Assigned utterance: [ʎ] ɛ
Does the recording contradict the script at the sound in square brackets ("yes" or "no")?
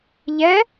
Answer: no